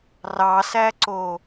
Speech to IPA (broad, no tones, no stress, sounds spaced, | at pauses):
r ɑ s æ ǀ o